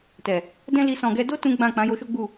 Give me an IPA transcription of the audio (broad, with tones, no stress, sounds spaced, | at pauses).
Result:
t ɛ˨ | d ɛ̃˦ l i˧ s ɔ̃˨ ɡ ɛ˧ d o˦ t ũ˦ ɡ͡b ã˦˨ k͡p ã˨˦ j o˧ ʃ o˦ ɡ͡b u˦˨